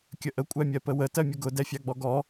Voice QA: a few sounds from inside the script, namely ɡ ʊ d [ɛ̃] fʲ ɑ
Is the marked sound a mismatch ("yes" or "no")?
yes